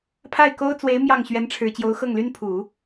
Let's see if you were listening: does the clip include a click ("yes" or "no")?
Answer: no